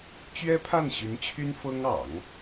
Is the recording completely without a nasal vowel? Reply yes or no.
yes